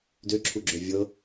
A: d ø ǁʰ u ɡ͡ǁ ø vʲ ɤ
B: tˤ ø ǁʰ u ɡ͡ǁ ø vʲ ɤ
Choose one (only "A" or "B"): A